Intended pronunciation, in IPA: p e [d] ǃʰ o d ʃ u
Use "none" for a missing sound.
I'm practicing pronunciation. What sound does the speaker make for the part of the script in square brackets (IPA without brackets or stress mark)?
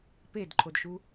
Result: d